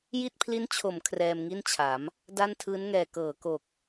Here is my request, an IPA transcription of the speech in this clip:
j i˥˩ t̚ pʰ l i˦˥ n t͡ɕʰ o˩˦ m kʰ r ɛː˧ m ŋ i˥˩ n t͡ɕʰ a˩˦ m | d a˥˩ n tʰ ɯː˦˥ n ŋ ɛː˨˩ k ɤː˩˦ k o˨˩ k̚

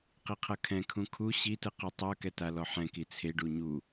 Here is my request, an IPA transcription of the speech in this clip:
q i qʰ ɤ kʰ ɛ̃ kʰ ũ kʰ u ɕ i t ɯ q u tˤ ɤ k ɛ t a l ɔ ħ ɛ̃ k i t͡sʰ e ɖ u ɲ u

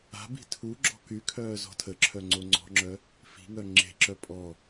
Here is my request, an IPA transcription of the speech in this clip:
a̤ b i̤ tʰ u ɡ͡ǁ ɔ̤ k y kʰ œː z ɔ̤ tʰ ə ǁʰ œ ŋ͡ǀ o ŋ͡ǀ ɔ̤ ŋ͡ǁ œ | f i̤ ŋ œ ŋ͡ǁ e̤ ǁ œ pʼ ɔ

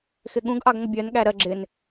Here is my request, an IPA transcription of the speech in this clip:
x ɪ ɠ ũ ɡ ʔ ɑ ɡ ŋʷ ɪ bʲ ɜ n ɠ æ ɾ ɜ ɡ͡ǁ ɪ n

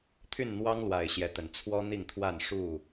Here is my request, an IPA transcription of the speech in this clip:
t̪ʰ y˥˨ n n̪ w ɑ˦ ŋ l w a˨˩ ɪ̯ ɕ j ɛ˨˦ t̪ ə˨˩ n t͡sʰ w ɔ˦ n̪ i˥˨ ŋ t̪ʰ w a˥˨ n ʂ u˥˨

